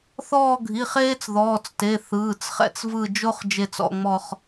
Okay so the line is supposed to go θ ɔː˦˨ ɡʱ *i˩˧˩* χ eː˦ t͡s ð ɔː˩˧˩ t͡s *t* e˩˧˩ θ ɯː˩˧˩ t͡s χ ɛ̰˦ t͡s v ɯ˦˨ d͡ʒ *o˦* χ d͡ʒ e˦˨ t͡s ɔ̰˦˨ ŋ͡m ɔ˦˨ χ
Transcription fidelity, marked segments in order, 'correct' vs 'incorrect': correct, correct, correct

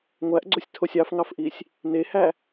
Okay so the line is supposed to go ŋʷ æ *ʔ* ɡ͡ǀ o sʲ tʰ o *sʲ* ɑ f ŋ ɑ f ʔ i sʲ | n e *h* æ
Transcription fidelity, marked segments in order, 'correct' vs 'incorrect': correct, correct, correct

